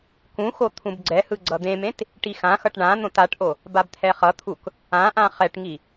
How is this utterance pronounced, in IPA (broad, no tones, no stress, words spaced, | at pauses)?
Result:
kũxo t̪ʰũbɡ͡ǀɛhɯ ɡ͡ǀʌd̪ẽmẽt | ʈixãxʌʈ ɳã n̪õtaʈʔo | babt̪ʰɛχʌt̪ʰuk | ãʔã χɛʈŋi